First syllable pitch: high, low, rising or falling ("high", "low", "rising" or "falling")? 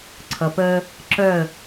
low